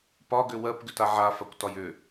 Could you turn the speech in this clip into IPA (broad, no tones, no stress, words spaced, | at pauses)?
pɒɡʏ wɜpɡʏta ʕafakʷtɒj ʏ